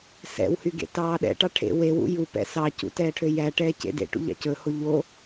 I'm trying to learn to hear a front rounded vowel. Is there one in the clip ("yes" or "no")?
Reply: yes